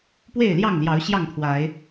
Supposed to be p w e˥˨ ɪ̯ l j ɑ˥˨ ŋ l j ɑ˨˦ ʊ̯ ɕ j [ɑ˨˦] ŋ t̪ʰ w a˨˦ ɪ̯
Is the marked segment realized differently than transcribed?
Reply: yes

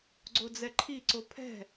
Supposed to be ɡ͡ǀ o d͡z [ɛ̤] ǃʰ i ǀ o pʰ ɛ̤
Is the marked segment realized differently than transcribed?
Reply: yes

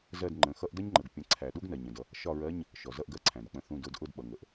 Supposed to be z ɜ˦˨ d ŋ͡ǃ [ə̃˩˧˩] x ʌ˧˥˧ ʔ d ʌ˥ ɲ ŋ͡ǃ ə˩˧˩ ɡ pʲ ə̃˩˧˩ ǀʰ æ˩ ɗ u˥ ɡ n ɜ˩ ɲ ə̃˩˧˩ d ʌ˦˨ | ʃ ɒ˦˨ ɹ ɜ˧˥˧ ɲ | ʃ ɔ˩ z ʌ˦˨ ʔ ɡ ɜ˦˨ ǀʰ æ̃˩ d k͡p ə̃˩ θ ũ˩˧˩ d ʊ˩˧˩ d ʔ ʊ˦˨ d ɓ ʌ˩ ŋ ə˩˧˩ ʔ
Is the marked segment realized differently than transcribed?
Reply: no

